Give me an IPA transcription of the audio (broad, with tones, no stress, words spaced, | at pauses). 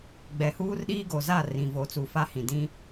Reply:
ɡ͡bɛ˨huː˦rɗiː˦ ɡo˨ za˦˨ rĩ˨ vo˨t͡su˨ fa˦hĩ˨ dĩ˦